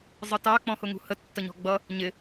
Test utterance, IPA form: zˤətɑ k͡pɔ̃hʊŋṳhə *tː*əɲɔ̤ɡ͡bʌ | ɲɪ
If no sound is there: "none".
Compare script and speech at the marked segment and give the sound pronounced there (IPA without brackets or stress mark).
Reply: tː